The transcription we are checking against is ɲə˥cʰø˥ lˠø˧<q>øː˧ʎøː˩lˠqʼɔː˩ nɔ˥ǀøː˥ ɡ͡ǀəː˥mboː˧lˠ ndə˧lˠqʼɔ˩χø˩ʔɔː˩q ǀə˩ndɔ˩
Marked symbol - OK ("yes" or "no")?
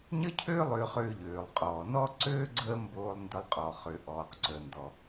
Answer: no